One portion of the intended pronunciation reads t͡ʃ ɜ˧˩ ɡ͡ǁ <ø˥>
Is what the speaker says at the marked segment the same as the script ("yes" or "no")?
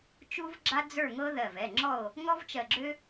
yes